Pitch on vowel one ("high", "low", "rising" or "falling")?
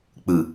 low